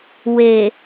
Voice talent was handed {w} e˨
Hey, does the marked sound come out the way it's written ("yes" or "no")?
yes